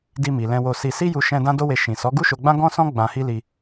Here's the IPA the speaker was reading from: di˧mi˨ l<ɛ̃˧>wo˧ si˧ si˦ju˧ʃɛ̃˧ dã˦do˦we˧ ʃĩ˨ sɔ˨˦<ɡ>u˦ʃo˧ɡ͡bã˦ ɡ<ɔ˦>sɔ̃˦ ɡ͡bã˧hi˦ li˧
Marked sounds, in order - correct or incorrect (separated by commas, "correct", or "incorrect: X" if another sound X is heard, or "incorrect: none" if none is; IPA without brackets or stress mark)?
correct, correct, incorrect: ɔ̃˦